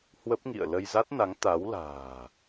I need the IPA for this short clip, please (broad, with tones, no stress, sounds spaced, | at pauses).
h w ə˦˥ p̚ ŋ ḭ˧˨ ə̯ l ə˧ j z a˦˥ t̚ n a˨˦ ŋ t̪ a˨˦ w l a̤ː˨˩